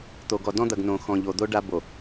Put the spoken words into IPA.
t̪o˨ɡɔ˨ dɔ̃˦d̪ɐ˨ɡ nõ˨ xɔ̃˨ʎo˨d̪o˦ ɖa˦ bo˨

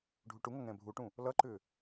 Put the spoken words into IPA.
ɖʱuʈuŋʌ ŋɛ̃bʱuʈũ | lʌǃʏ

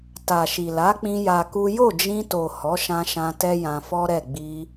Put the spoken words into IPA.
ta˨ʃi˨la˨˦k͡pĩ˧ ja˧ku˦ jo˦˨d͡ʒĩ˧to˨ hɔ˨˦ʃã˧ʃã˧ tɛ˦jã˧fɔ˦ɾɛ˦˨ ɡ͡bi˧

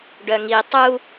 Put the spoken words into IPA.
ɖœŋi tˤu

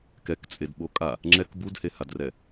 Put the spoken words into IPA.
kɛkt͡sʼedɓo kʼa | ŋ͡ǁɛk budhehadrɛ

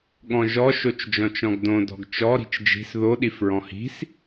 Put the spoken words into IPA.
ɠɔ̃ʒɔ ʃot͡ʃd͡ʒɔ̃t͡ʃɔ̃ɡdõ dɔ̤ɡt͡ʃɔ ɾi̤t͡ʃd͡ʒi̤s ðo ɗifɹɔ̃hi̤s

